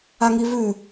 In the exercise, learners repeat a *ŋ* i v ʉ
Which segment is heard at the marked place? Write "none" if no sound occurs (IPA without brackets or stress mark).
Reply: ŋ